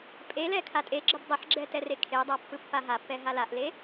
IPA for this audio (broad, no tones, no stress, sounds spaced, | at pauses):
pʼ e l ɛ kʰ a tʼ e ɡ͡ǁ ə b dˤ ə ħ ɡ͡ǁ ɛ t ɛ r e kʰ e dˤ a pː ɯ pː a ɦ a pː ɛ ɦ a l a ʔ l e